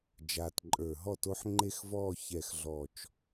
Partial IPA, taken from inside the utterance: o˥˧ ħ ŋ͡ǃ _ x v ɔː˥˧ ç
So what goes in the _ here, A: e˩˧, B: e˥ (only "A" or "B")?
B